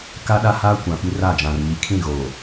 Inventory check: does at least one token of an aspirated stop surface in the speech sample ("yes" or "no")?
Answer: yes